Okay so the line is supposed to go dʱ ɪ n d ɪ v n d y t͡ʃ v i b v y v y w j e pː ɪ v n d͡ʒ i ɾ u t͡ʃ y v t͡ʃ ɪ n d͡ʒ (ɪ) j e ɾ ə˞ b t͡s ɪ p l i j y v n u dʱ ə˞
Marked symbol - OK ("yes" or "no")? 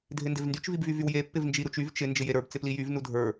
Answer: yes